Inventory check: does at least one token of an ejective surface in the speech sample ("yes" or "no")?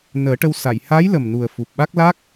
no